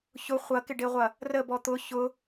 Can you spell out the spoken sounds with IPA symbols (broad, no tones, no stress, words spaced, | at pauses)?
çʊ χʷɐkɪɖeʁʷɐ | rəbɔ t̪ʊ çʊ